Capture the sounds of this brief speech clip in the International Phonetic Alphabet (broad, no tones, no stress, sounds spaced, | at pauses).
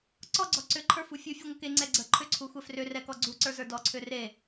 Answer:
ǀ ɔ ɡ͡ǀ ɔ ǀ ʏ ǃʰ ə˞ f u fʲ u fʲ u ŋʷ ə k e ŋ͡ǀ ɛ ɡ͡ǀ ə ǃʰ ʏ ǀʰ u xʷ ɛ f r ʏ r ɛ k ɔ ɡ͡ǀ u ǀ ə˞ z ə˞ d ɔ ǀʰ ʏ r e